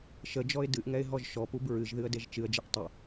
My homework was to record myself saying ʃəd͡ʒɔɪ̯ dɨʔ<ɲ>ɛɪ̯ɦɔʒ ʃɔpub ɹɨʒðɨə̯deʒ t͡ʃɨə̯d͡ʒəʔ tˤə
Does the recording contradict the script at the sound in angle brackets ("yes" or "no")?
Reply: yes